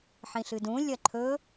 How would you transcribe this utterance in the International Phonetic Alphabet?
ħ ĩ ɬ ɨ d ũ lʲ ɐ ǃʰ ɵ

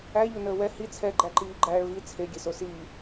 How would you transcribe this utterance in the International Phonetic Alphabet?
æ ʎ o n əː w ɛ h i t͡sʰ ɛ ɡ͡ǃ æ ǃ iː ɡ͡ǃ æː ɭ v i t͡sʰ e ɡʲ e s o s iː

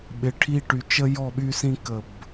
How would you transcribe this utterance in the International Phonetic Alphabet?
ɓ ɪ˨ ʈʰ i˦ ʈ y˨ t͡ʃ ə˦ j ɔ˦˨ ɓ y˦ s ĩ˦ k ə˦˨ b

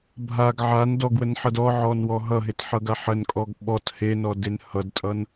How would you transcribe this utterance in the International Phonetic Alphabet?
bʱ a ɡ ʕ a n d ɔ ɡ w ə n ħ ʌ d ɔ ʕ ɔ n w ɔ ɦ ʌ ɦ e t ħ ʌ ɡ a ħ ə n kʼ ɔ ɡ ɓ ɔ t h e n ɔ d e n h ʌ d tʼ ʌ n

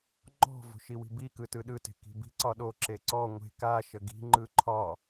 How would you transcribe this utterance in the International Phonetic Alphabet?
ŋ͡ǃ ɔ̤ v o̤ ʃ i w i̤ b i k ɯ t ɯ ɗ ɯ t e̤ k i̤ b i̤ ǀ ɒ ɗ o ǁ e ǀ ɔ ŋʷ e̤ k a ʃ ə ɡ i̤ ŋ͡ǃ ɯ ǃʰ ɒ

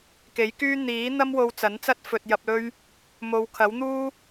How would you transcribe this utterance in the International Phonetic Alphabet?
k e˨˥ j k yː˥ n̪ iː˨˥ n̪ ɐ˥ m w o˧ w t͡s ɐ˨˥ n t͡s ɐ˥ t̚ f ɵ˨ t̚ j ɐ˨ p̚ l ɵ˧ ɥ | m o˨˧ w kʰ ɐ˨˥ w n̪ uː˥

